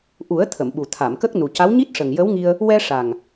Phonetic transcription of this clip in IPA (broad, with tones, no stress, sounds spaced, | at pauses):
ʔ u˨˩˦ ə̯ t̪ʰ ə˨˩˨ m ɓ u˨˩ t̪ʰ a˨˩˨ m k ə˦˥ k̚ n u˨˩ c a˧˥ w ɲ i˦˥ t̚ ʂ ə˨˩ ŋ j ə˧˥ w ŋ i˧ ə̯ | w ɛ˧ ʂ a˨˩ ŋ